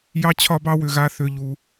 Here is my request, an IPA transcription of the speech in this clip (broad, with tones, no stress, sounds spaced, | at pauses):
j ɑ˦ t͡ɕʰ ɒ˦ b ɑ˦ w ʏ˨ ɣ a˦˨ θ ʏ˦˨ ʎ u˦